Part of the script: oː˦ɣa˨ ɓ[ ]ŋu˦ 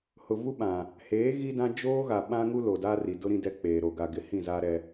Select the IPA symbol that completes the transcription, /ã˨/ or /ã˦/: ã˦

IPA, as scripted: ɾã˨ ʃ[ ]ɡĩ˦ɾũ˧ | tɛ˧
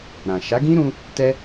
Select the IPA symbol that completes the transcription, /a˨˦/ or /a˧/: a˨˦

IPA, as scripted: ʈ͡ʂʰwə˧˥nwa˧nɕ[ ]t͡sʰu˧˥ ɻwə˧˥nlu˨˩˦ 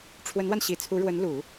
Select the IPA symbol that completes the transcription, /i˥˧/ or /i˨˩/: i˨˩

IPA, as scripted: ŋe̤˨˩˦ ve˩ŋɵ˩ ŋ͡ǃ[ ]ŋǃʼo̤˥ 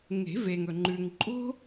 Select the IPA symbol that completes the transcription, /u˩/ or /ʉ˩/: ʉ˩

